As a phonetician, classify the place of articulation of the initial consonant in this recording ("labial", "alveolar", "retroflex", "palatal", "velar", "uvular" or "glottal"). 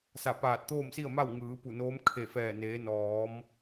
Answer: alveolar